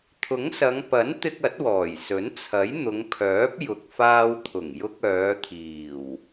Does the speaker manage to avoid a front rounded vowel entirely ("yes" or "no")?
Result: no